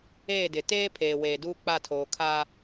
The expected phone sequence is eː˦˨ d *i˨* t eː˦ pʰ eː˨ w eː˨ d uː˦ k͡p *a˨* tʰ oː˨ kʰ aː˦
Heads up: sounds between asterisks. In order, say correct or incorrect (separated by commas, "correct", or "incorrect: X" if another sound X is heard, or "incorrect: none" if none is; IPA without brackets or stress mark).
incorrect: ɪ˨, incorrect: a˦˨